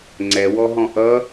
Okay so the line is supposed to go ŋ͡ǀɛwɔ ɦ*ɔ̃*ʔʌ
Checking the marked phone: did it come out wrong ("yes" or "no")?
no